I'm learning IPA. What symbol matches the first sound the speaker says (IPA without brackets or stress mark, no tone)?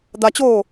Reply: d̪